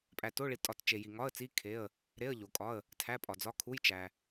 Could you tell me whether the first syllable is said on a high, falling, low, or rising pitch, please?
low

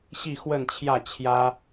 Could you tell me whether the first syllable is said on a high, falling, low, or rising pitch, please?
falling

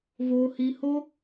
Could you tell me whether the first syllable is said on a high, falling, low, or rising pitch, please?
high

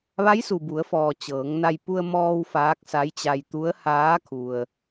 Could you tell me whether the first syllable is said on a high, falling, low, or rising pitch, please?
rising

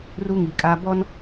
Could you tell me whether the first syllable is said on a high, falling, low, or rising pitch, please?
high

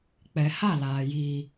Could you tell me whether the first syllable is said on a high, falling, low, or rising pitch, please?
low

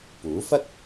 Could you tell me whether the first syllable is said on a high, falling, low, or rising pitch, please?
rising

